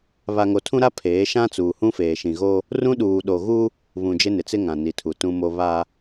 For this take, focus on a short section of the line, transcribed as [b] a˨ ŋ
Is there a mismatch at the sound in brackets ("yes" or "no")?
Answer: yes